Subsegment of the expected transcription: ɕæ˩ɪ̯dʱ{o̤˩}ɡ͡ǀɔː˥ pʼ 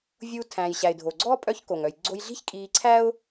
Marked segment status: incorrect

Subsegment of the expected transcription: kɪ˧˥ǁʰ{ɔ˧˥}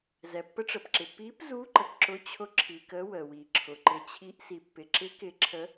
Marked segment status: incorrect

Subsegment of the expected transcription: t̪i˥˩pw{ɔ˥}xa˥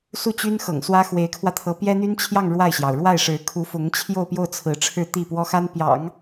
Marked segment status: correct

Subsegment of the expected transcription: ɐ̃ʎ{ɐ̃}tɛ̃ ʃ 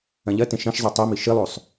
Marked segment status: incorrect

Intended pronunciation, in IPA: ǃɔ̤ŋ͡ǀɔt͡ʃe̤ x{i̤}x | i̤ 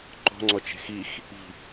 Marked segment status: incorrect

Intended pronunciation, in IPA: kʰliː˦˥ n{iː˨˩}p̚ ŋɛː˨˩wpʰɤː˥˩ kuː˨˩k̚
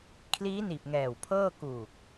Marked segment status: correct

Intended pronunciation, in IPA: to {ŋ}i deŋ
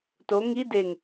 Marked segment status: correct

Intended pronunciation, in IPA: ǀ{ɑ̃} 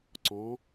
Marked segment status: incorrect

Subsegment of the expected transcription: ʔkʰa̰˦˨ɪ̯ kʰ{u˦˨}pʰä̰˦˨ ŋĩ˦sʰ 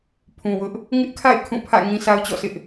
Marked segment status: incorrect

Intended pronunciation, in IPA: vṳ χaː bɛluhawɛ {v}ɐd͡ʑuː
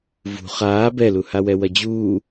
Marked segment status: incorrect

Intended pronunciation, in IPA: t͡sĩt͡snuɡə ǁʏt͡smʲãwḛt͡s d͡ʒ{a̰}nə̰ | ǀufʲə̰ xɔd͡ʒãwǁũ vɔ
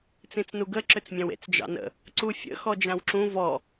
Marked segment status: incorrect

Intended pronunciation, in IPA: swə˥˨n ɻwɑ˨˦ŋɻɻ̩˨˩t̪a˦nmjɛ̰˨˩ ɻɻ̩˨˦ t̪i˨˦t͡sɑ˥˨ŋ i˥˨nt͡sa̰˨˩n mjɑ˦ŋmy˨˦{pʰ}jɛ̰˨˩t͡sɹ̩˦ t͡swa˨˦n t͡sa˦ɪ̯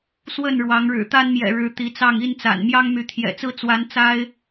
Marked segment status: incorrect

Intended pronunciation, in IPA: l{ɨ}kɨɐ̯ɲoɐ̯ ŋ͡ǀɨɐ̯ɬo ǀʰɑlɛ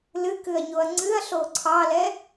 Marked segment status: correct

